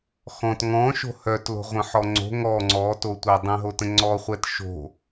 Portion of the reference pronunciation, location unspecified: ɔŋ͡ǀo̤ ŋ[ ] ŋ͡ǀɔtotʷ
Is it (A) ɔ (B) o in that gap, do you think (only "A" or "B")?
A